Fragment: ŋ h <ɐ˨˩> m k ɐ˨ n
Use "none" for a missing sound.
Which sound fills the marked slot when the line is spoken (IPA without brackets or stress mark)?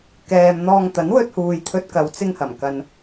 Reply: ɐ˨˩